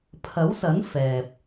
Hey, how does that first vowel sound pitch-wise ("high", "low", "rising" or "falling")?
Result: rising